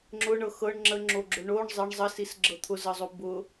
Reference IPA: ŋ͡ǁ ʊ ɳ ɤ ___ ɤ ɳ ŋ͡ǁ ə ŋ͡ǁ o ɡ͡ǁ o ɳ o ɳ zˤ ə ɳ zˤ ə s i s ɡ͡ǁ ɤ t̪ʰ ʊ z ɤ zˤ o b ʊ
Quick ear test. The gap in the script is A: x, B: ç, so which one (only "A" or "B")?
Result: A